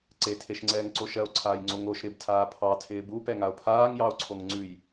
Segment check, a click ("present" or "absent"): present